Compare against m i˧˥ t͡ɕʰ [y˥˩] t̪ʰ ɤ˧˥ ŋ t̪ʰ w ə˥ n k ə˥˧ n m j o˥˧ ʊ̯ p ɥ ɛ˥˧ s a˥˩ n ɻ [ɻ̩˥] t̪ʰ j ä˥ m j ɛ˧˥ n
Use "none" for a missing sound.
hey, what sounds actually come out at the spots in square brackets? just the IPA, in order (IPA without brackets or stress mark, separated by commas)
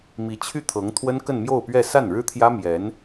y˥˩, ɻ̩˥